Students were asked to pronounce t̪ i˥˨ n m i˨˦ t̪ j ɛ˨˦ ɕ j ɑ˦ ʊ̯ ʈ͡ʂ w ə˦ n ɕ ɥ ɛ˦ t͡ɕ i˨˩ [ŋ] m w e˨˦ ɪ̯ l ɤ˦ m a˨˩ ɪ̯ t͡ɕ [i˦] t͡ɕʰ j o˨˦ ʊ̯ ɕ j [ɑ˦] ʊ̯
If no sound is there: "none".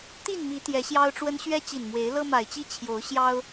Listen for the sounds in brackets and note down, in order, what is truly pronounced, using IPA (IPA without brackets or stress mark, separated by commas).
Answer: n, i˦, ɑ˦